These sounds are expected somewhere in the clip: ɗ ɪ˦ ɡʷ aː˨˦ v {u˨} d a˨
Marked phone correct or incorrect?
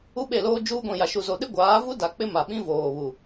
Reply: incorrect: u˦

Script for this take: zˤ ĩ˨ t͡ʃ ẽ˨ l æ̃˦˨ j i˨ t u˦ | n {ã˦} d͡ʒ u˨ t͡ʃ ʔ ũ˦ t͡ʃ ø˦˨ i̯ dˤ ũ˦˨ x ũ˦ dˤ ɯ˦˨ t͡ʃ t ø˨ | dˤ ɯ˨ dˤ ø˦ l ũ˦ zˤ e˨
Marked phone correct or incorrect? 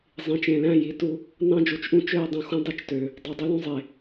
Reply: incorrect: ɑ̃˦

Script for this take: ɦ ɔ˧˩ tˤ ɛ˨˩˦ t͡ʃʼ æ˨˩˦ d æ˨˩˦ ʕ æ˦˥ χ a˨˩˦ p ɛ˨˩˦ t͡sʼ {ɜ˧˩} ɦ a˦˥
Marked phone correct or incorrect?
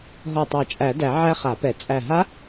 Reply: incorrect: æ˧˩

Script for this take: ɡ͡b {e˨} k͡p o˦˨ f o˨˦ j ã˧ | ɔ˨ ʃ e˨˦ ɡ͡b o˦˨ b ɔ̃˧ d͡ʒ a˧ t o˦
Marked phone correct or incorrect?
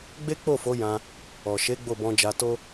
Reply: incorrect: e˦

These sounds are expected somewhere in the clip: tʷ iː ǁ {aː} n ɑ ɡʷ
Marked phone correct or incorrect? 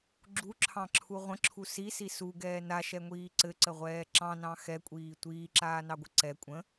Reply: correct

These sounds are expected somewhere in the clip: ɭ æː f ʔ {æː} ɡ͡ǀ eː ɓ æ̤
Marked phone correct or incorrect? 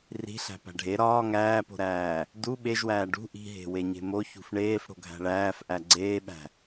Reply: incorrect: æ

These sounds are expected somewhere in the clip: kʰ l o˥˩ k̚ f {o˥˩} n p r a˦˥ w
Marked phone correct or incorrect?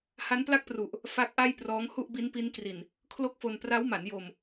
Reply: incorrect: o˧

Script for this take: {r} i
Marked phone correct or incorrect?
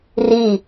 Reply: correct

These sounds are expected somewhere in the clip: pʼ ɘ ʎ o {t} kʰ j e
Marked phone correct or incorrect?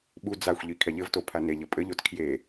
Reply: correct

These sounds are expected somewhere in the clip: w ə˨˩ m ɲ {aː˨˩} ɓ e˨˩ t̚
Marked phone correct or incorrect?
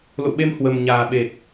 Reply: correct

